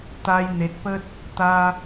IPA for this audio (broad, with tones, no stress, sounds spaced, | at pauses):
t̪ a˧ j n̪ e˨ t̚ p ə˦ t̚ | t̪ a˦